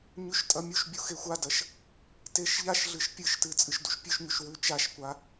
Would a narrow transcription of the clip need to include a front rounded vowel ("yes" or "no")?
no